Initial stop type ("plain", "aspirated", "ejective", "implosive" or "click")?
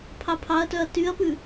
aspirated